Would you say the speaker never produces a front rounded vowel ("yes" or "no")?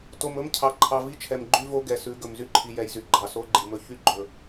no